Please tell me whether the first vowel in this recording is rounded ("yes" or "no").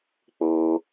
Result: yes